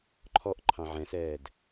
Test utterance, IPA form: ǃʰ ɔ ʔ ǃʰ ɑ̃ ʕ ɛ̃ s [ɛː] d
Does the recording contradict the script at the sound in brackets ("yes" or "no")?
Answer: no